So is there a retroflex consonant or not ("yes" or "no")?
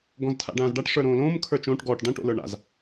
yes